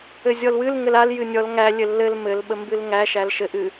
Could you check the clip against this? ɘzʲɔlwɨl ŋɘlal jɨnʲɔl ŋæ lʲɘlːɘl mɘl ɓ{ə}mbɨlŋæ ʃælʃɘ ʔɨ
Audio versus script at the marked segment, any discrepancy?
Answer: no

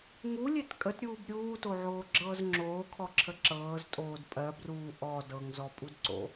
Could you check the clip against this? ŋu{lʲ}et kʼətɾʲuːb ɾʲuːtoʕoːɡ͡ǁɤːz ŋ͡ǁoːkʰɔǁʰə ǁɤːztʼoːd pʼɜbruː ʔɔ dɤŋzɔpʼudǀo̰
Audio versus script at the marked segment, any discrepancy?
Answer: no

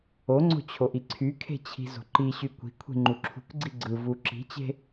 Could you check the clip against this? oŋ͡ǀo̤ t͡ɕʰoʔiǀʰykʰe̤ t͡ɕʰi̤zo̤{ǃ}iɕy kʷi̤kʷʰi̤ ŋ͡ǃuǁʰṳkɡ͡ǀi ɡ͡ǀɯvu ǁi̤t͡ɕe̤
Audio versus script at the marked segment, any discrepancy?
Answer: no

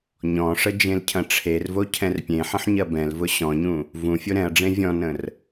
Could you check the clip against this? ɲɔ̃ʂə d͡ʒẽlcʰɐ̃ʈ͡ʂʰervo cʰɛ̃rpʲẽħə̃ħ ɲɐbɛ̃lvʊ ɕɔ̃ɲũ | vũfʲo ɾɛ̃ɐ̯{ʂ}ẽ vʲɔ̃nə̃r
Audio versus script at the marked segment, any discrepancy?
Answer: yes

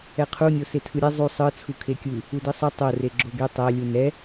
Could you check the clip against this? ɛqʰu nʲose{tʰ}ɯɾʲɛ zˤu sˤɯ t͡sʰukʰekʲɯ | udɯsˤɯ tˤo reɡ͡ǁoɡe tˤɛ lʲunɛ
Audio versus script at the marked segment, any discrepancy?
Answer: no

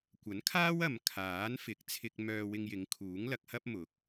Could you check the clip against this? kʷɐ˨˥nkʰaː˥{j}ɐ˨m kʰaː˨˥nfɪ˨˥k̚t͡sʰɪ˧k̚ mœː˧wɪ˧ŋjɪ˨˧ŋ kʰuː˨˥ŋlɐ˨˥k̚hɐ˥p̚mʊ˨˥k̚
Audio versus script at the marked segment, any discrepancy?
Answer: yes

